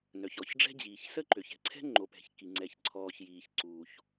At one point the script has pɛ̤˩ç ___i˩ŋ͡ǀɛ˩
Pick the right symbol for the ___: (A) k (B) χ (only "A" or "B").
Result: A